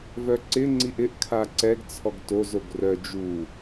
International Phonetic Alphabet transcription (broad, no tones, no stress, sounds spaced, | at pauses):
v œ ǀ ɪ ŋ͡ǀ i ʔ ɪ ʔ kʰ a ǀ ɛ ɡ t͡sʰ ɔ ɡ t o z o ɡ r œ d͡ʒ u